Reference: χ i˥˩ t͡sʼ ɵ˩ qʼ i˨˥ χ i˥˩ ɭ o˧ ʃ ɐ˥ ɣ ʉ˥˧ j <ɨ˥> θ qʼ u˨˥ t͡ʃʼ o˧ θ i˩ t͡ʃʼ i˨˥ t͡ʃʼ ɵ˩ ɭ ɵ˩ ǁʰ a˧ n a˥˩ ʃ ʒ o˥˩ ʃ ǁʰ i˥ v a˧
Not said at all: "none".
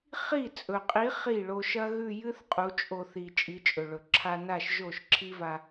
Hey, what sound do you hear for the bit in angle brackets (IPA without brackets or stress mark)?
ɨ˥